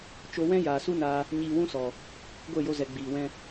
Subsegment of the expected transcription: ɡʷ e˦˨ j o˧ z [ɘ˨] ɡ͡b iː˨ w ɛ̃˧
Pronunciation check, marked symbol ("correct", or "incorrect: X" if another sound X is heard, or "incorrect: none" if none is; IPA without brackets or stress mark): incorrect: ɛ˨